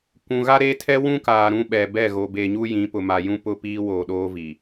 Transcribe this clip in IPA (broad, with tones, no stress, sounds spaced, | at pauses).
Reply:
kʷ ũ˨ ɣ a˦ ɾ e˦ tʰ ɛ˦ w ũ˦ k aː˨ ɾ ũ˦ ɓ ɛ˨ b ɛ˦˨ ɣ o˨ b e˨ ɲ u˦ j ĩ˨˦ p ʊ˨ m a˨ j ũ˦ p ʊ˦ p iː˦ w oː˨ ɗ oː˦ v i˨